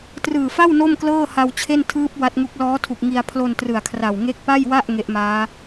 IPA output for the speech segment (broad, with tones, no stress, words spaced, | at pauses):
trɯː˨˩fa˥˩w no˥˩mklɤː˥˩ ha˧wt͡ɕʰe˥˩n tʰɯː˦˥p̚ wa˦˥t̚ŋu˦˥k̚ lɔː˦˥tʰu˨˩k̚ ŋi˧a̯ pʰlo˧n trɯ˨˩a̯kʰra˨˩w ŋe˦˥k̚pa˥˩jwa˥˩ʔ ŋe˦˥ʔmaː˦˥